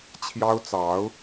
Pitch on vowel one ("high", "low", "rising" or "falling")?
high